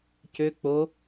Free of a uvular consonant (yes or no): yes